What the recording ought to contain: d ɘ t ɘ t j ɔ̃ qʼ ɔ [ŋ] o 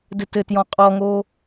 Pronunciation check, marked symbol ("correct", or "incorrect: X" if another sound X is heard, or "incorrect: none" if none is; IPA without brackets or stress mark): correct